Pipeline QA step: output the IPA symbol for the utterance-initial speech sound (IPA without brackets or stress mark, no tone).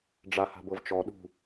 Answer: ɖ͡ʐ